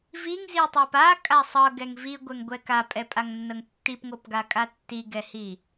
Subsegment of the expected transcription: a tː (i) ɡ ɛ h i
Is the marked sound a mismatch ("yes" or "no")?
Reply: no